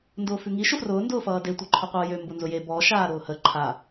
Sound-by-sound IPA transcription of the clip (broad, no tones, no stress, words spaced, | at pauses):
ndʊːfʉŋi ʃʊfrʊː ndʊːfʌːde tʷeǃʰʊqʷʌːjø mbʊnzʊje bɔ ʃaːɾʊːhə ǃʰa